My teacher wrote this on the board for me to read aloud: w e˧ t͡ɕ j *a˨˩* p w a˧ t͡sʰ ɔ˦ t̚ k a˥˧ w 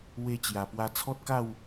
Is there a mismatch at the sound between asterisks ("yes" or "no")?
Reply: no